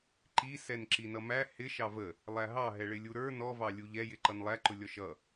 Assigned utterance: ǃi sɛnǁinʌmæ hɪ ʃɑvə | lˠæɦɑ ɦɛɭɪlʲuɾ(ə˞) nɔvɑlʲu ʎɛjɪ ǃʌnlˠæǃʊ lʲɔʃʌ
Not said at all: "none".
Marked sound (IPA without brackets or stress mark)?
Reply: ə˞